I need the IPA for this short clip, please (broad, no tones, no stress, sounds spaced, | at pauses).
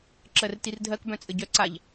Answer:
ǁ ɜ r t i r dʱ ɜ k b œ̃ t͡sʼ ɘ ɟ œ ǀ a ʎ